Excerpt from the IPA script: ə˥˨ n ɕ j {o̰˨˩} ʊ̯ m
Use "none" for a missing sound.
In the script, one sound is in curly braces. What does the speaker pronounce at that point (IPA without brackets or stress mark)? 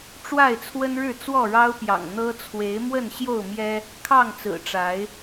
o˥˨